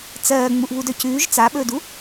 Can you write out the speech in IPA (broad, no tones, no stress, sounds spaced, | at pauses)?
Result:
t͡s ɜː ŋ͡m u ʔ β u d œ c ʉː ʒ t͡s a ɓ ɵː d u